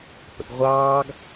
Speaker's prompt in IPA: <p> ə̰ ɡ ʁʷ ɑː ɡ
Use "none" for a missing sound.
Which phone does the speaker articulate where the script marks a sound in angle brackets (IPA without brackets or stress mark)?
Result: p